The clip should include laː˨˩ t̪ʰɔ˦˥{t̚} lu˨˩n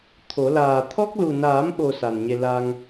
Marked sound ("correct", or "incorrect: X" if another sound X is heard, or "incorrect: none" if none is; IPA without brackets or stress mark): incorrect: k̚